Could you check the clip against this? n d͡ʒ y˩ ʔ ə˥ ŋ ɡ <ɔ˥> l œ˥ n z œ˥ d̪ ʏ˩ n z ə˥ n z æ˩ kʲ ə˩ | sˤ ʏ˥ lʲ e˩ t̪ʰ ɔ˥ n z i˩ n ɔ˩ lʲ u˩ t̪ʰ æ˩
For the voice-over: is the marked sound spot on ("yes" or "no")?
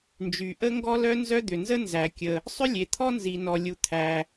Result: yes